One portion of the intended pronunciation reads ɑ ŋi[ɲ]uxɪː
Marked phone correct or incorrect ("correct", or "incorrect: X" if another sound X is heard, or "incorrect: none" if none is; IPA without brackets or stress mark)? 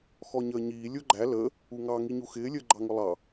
correct